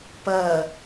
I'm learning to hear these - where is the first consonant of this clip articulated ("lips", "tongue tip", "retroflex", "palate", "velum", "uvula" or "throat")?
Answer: lips